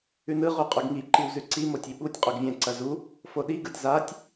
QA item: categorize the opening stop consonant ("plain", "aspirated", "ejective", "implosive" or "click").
ejective